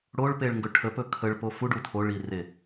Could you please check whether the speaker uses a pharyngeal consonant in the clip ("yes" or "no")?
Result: no